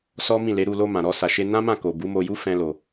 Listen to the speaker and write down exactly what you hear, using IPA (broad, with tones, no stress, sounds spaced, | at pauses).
s ɔ˦ m ĩ˦˨ l e˨˦ ɾ u˦˨ l o˧ m ã˨ ɾ ɔ˧ s a˨ ʃ e˧ n ã˦ m ã˦˨ k o˨ b u˨˦ m o˧ j u˦ f ɛ̃˦ l o˧